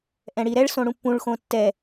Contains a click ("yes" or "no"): no